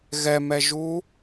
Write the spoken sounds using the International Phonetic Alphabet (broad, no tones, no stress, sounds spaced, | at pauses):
ɣ ɛ m ɛ ʒ u